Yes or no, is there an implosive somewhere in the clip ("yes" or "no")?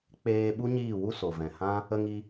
yes